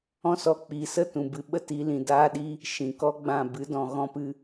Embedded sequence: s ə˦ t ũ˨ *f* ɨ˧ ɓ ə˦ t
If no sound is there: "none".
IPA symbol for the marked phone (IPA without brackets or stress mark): b